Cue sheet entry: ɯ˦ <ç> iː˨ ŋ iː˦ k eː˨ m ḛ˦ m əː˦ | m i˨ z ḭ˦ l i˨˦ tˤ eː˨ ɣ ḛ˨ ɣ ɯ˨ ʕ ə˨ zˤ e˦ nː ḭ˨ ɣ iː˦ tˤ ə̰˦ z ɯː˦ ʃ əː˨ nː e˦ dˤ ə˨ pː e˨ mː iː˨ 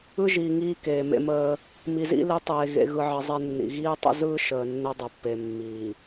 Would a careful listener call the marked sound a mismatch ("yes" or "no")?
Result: yes